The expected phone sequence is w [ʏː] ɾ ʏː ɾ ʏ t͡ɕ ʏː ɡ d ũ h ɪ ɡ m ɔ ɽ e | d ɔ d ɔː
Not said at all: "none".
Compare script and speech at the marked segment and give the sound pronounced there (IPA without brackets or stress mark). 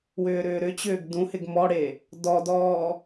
ʏː